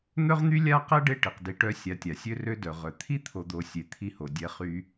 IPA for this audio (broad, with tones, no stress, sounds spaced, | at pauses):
n̪ œ˥ ʁ n̪ y˥ lʲ a˥ q ɛ˥ ɖ e˦ ʈ i˩ q d i˨ ʈ œ˦ sʲ a˨ tʲ a˩ sʲ ø˦ r ø˦ d œ˩ ʁ œ˩ t̪ʰ i˥ t̪ʰ o˨ d̪ o˨ sʲ e˨ t̪ʰ i˦ h o˨ dʲ ɛ˦ χ y˦